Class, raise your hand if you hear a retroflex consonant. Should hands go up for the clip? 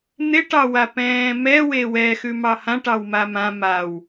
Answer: yes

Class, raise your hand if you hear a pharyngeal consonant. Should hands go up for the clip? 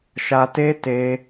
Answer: no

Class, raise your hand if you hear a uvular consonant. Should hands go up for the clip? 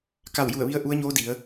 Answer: no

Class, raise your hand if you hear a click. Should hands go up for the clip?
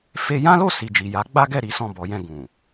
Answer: no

